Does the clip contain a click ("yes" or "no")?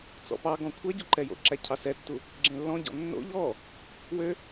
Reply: yes